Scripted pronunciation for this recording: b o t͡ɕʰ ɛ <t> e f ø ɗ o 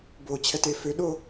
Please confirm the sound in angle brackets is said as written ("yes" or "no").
yes